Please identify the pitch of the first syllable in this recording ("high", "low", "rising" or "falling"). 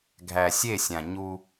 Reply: low